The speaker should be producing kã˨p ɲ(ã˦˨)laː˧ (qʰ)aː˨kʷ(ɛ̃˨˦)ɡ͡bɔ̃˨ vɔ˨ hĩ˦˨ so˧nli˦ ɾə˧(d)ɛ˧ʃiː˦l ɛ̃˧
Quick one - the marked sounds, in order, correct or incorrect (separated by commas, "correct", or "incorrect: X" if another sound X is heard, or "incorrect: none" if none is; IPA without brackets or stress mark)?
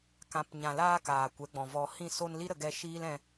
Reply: incorrect: ã˨, incorrect: k, incorrect: ɛ˨˦, incorrect: ɡ